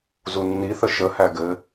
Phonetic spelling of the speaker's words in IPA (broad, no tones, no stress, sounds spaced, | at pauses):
z u nː i θ ə ʃ ə h æ ɡ ɘ